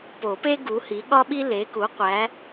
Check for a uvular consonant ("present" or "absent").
present